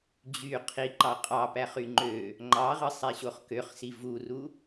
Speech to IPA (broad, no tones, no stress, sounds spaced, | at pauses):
d͡ʑ y qʰ i ǃ ɑ qʼ ɑ p æ χ y ŋ͡ǃ ø | ŋ͡ǃ ɑ ʁ ɯ sˤ e ɕ o χ k ø χ s i v u r u